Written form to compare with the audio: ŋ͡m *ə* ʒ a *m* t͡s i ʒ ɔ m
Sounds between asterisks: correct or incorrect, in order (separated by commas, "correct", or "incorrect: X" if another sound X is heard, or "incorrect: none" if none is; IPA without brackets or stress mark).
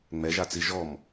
incorrect: ɛ, incorrect: none